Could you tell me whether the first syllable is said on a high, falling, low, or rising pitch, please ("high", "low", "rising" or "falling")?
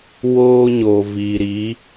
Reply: high